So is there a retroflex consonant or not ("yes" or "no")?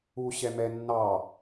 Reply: no